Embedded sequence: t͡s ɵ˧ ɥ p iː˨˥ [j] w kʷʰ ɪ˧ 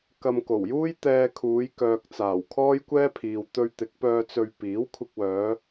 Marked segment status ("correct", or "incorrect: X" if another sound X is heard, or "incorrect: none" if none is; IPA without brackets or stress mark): incorrect: none